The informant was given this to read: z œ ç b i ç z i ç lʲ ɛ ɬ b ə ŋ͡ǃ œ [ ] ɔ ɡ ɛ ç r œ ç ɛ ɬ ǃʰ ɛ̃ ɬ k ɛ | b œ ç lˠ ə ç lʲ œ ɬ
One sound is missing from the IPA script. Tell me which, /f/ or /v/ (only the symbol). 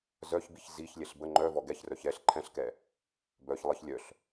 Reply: v